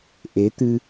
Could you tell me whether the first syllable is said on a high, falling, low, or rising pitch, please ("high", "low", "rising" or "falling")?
rising